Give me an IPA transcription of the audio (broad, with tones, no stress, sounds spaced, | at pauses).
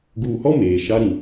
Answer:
ɡ uː˨ h ɔ˦ m eː˨ ʃ a˦ ɾ ĩ˨